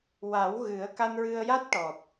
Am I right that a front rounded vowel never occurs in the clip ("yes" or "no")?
yes